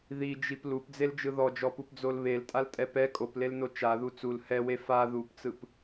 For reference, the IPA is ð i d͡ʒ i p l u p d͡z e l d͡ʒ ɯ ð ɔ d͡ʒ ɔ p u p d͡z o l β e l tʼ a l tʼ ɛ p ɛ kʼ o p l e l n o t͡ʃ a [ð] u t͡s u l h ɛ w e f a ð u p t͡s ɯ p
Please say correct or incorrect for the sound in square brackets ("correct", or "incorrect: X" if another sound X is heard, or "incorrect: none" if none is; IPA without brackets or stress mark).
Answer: correct